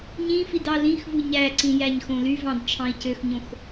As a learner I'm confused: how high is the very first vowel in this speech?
high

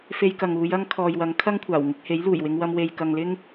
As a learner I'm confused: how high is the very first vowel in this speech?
mid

